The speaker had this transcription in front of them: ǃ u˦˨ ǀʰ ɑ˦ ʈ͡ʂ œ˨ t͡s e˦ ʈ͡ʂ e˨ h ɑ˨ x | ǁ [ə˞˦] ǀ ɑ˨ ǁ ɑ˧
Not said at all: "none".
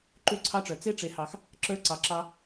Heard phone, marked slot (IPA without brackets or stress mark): ə˞˦